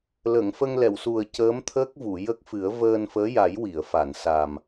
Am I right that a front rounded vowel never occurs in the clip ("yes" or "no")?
yes